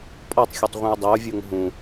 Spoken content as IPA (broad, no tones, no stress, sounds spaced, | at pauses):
pʼ ɔ tˤ xʲ ɔ tˤ ʁʷ ĩ o̯ dˤ e o̯ vʲ o ŋ ɦ ũ